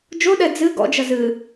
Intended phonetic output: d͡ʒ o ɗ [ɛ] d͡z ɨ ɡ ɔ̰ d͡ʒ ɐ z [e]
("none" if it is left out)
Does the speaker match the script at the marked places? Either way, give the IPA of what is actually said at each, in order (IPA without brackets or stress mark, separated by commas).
ɛ, ɨ